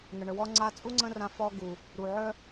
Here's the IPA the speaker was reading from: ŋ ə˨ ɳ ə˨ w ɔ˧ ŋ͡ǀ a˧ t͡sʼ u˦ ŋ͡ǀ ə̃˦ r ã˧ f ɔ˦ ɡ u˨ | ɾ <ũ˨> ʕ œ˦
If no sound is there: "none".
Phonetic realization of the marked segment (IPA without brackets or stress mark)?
u˨